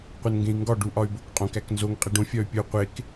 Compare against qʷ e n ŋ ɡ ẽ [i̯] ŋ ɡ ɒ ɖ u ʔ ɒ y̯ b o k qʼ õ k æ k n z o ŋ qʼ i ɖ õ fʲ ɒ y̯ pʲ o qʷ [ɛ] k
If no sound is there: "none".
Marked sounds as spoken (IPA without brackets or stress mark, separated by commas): i̯, e